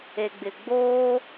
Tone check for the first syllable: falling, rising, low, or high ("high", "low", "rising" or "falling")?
low